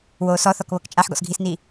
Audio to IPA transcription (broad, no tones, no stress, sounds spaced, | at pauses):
w oː s ɔ θ ɔ k β ɤ k t͡ʃʼ a ħ ɡ ɔ̰ s ɡʱ i s n i